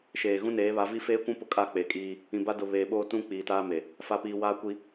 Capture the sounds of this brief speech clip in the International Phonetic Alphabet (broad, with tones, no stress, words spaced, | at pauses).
ʃeː˨ ɣũ˦neː˨˦βa˨˦ vi˦feː˦kʷũ˦ pʊ˦kʼa˦˨k͡pe˨kʼiː˦ | ĩ˨ba˦ dʊ˨ βeː˨ɓoː˦ tũ˦ k͡piː˨taː˦me˨ | fa˨piː˨ waː˦kʷi˦